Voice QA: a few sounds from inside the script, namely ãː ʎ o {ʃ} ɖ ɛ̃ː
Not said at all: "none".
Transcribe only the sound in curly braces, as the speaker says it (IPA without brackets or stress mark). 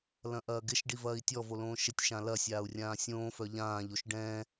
ʃ